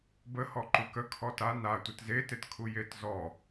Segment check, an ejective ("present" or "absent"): absent